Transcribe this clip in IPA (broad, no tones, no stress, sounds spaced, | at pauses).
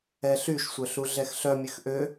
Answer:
ɛ ɬ y ʃ sʷ œ ɬ u ɮ ɛ x ɬ œ mʲ ø x ʔ ø